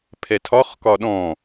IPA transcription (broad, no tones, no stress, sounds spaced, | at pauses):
pʰ ɛ tʰ ɒ χ k ɒ ɗ ɔ̃